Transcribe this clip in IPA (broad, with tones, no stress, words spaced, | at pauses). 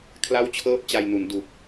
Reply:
kʰla˥˩wt͡ɕʰɤː˥˩p̚t͡ɕa˧jnu˩˦n du˨˩k̚